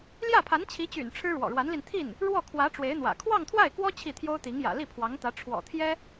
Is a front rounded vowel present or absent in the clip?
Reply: present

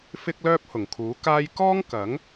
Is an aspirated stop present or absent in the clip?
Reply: present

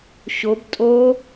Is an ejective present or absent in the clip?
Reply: present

